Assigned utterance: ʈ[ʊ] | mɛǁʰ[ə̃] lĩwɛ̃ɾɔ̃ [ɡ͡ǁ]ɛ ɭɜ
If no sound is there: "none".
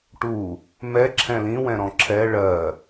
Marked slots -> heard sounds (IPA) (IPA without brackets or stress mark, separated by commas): u, ɛ̃, ǁʰ